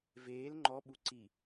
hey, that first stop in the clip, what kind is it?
click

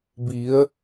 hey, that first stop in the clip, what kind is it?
plain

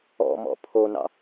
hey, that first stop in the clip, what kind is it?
aspirated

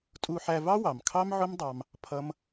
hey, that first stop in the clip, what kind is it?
ejective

